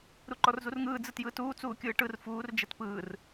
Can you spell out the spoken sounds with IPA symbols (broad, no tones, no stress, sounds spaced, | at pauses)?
ɾ u ǃ ɔ r z u r ŋ ɯː d͡z ɯ t j ɯː t uː t͡s uː kʲ ɯː ʈ ɯ r f uː r d͡ʒ ɛ t p ɯː r